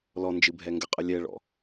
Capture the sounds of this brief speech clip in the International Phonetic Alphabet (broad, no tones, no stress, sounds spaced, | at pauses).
l ɔ n d͡ʒ ɨ bʱ ɛ ŋ ɡ ə qʼ ə lʲ ɛ ɭ ɔ̰